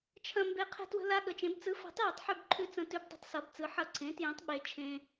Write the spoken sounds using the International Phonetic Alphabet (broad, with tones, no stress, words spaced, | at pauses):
t͡ʃʰɐ̃˦ mbe˦ qʰe̤˦twə̤˦ la˦ɠə˨˥t͡ʃẽ˨˥b t͡sɯ˨˥fa̤˨˥tˤje˨˥tˤ ħʉ˦bǃʰʉ˦t͡sə̃˦tʉ˦b dˤə̤˦tˤsʌ˨˥b t͡sɯ˨˥ħɐ˦ǀʰẽ˨˥ tjẽ˨˥tˤɓe˨˥ t͡ʃʰẽ˦